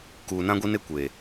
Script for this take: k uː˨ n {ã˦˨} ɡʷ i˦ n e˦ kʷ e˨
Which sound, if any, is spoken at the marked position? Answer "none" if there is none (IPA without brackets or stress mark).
ã˦